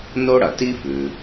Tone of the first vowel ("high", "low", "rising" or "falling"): high